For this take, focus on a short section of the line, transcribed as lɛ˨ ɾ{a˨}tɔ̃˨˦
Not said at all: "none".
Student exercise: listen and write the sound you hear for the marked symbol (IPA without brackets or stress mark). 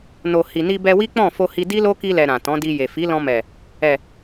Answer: ã˨